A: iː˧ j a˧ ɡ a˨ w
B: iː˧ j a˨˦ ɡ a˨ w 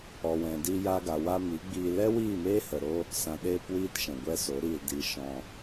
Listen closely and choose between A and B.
A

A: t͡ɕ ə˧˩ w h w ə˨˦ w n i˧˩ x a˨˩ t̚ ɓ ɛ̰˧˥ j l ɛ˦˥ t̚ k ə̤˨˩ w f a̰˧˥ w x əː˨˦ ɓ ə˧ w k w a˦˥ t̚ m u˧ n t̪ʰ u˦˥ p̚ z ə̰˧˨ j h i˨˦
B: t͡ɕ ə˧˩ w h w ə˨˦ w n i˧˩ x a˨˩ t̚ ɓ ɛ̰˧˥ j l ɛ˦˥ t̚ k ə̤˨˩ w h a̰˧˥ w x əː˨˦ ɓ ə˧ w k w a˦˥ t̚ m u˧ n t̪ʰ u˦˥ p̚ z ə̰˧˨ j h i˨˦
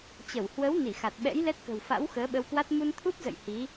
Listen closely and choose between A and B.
A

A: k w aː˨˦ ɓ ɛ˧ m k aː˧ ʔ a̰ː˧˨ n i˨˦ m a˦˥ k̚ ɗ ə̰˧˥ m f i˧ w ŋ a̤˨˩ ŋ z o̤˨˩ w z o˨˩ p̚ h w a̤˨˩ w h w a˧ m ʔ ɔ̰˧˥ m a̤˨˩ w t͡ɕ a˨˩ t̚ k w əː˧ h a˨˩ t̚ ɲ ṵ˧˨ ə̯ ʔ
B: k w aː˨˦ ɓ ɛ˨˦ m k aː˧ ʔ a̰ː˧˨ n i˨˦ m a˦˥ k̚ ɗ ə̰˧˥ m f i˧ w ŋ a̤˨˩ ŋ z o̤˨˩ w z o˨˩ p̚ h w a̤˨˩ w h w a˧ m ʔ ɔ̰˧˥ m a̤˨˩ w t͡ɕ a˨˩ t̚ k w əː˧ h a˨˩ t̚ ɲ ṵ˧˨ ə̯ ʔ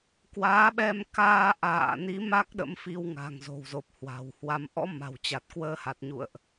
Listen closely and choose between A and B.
A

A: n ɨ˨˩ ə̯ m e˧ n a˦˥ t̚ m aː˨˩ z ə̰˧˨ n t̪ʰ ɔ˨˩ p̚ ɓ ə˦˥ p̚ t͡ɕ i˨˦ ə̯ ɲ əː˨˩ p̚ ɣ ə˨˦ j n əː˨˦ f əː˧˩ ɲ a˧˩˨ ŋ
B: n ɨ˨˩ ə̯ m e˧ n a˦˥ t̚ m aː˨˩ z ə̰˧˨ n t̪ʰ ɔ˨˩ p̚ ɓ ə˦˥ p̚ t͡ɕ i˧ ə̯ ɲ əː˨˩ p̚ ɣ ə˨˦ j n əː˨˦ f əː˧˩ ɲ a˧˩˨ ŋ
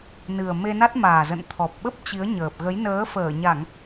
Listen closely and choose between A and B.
A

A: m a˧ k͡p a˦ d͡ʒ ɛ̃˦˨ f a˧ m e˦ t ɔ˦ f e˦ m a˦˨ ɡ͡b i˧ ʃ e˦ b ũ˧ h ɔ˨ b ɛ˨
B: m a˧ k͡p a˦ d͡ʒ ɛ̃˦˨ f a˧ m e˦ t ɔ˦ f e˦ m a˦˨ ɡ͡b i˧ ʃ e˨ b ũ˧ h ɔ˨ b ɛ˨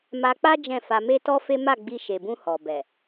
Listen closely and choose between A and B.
B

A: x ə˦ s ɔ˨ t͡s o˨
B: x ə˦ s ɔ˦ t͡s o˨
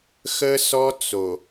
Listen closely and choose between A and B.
B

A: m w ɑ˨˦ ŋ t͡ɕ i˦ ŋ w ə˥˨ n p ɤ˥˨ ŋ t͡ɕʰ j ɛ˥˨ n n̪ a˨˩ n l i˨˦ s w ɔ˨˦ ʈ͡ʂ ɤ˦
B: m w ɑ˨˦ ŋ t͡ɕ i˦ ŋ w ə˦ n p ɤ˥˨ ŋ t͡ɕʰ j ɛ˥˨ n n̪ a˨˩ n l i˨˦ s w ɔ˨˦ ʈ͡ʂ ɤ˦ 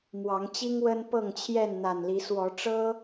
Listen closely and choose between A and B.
B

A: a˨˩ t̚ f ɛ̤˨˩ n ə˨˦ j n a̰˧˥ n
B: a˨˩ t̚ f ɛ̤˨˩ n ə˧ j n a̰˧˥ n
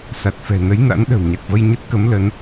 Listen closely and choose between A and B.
A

